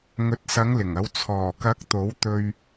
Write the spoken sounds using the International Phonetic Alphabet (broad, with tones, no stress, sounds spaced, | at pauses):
ŋ ɵ˨˥ t̚ s ɐ˨˧ ŋ l ɪ˨˩ ŋ ɐ˨˧ w t͡sʰ ɔː˨˩ k ɐ˨˥ k̚ t̪ o˨˥ w t̪ ɵ˧ ɥ